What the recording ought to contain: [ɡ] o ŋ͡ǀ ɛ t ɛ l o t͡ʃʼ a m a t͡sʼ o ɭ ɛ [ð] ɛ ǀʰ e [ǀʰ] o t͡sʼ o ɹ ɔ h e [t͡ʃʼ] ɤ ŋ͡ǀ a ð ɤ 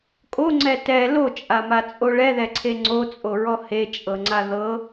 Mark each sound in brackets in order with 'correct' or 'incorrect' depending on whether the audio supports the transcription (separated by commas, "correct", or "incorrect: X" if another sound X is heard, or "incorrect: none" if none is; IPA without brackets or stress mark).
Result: incorrect: kʼ, correct, incorrect: ŋ͡ǀ, correct